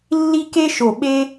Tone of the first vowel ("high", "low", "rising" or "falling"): high